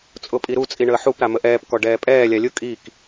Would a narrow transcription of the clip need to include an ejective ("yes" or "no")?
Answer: yes